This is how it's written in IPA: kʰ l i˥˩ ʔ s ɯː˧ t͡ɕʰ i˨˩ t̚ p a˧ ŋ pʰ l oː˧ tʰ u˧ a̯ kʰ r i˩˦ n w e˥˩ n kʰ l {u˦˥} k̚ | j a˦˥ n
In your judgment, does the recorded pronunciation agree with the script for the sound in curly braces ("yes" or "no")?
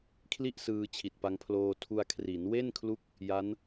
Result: yes